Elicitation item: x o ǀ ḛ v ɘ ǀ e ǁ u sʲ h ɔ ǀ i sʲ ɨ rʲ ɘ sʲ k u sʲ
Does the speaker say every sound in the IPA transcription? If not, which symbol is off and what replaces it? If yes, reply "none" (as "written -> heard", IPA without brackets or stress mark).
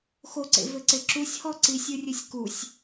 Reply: none